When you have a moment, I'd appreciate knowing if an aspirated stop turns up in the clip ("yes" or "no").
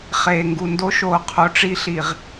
yes